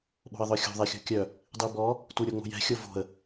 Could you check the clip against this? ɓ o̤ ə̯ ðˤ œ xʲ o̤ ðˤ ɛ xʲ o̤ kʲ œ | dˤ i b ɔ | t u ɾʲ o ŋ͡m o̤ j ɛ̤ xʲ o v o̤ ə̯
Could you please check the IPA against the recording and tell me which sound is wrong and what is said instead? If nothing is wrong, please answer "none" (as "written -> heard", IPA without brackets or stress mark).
none